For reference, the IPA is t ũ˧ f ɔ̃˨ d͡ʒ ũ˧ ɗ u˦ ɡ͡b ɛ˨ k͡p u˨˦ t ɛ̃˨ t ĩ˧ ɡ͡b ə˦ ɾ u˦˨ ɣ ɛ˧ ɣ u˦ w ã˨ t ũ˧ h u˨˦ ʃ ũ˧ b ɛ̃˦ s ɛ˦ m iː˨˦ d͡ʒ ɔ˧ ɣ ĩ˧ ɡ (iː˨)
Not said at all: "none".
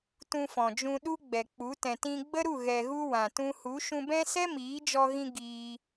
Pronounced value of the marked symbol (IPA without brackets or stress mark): iː˧